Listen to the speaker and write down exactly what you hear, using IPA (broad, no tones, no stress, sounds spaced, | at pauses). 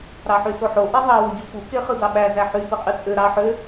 ɾ ɑ ħ y s o ħ o ʔ e ðˤ ɑ w o ɟ u f u k e χ ɯ d ɑ ɓ æ z æ ħ y p ɯ qʼ y t͡sʼ ø ɾ ɑ ħ ø